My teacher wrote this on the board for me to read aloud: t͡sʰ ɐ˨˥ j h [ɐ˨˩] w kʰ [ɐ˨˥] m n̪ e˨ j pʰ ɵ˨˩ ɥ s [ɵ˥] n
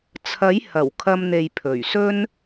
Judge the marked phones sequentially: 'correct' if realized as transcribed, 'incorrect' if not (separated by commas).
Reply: correct, incorrect, correct